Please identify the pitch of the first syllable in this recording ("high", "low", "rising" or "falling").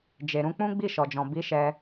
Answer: low